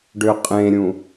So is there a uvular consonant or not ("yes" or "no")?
yes